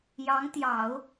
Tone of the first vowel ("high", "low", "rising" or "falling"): rising